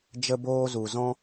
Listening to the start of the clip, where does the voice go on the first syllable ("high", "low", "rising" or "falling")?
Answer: high